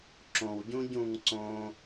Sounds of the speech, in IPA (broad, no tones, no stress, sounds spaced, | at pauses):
ǁ õ w ɟ ũ ɟ ũ ŋ ǀ õ